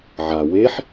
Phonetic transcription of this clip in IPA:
ʕa weħ

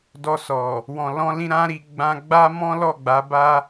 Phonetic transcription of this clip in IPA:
dɔ˧sɔ˨ | wɔ̃˨lɔ̃˧lĩ˧ ɾã˦ɾi˧ ɡ͡bã˧ ɡ͡ba˦mɔ̃˦lɔ˦˨ ɡ͡ba˨˦ba˦

